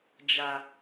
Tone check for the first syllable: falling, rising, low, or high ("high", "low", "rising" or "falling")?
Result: low